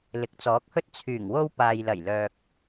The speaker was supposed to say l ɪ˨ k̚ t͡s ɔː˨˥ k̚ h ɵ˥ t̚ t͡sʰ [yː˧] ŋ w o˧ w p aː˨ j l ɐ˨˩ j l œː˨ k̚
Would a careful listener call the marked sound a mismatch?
yes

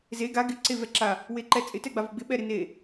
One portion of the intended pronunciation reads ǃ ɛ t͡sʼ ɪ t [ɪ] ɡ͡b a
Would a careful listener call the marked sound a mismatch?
yes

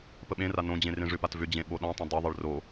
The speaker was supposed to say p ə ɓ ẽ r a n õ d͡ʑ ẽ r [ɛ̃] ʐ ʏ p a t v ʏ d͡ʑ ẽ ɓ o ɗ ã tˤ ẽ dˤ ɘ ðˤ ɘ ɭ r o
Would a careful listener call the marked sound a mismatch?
yes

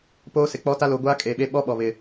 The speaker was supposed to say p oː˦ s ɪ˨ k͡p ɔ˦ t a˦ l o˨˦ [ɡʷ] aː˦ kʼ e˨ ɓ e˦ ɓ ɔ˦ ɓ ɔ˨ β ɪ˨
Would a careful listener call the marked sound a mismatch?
no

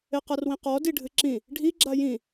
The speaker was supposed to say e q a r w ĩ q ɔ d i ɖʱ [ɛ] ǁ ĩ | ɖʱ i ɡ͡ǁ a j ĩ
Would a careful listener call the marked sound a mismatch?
yes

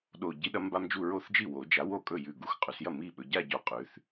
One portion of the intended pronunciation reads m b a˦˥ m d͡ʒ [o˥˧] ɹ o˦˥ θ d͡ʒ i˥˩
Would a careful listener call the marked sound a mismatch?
yes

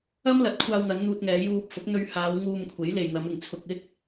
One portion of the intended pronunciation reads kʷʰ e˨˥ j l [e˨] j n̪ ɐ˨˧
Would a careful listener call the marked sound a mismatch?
no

